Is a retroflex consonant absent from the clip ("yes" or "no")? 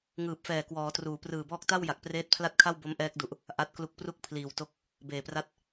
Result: yes